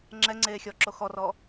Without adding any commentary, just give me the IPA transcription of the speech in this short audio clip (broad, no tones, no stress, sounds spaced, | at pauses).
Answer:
ŋ͡ǁ ɛ ŋ͡ǀ eː xʲ ɔ ǁ o x ɔ r ɔ